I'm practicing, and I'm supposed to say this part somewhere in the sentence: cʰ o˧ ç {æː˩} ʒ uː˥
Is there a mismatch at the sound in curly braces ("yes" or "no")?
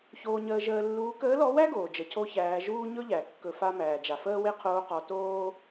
yes